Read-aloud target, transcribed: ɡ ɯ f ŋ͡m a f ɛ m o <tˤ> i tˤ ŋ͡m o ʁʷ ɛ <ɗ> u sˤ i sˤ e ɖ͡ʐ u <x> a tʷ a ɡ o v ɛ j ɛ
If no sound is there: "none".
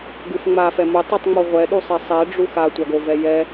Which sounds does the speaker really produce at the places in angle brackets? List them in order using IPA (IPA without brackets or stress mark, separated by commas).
tˤ, ɗ, x